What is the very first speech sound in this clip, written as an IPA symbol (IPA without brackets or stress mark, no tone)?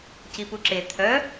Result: c